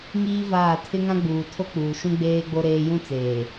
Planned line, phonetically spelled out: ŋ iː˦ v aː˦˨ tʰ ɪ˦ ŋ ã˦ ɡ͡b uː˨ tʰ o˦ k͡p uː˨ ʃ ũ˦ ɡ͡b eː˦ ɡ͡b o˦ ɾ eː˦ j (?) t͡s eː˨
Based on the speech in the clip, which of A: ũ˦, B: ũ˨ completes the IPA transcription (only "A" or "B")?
A